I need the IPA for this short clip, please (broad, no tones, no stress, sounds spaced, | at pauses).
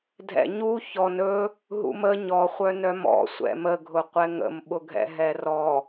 dʱ ɛ̰ ɲ u ç ɔ n ɵ | ɦ ṵ m ə ɲ ɔ χʷ œ n œ m ɔ̰ sʷ ɛ̰ m ə ɡʱ ʊ qʷ ɛ ŋ ə̰ m ɓ ʊ ɡʱ ɛ̰ ɦ ɛ r ɔ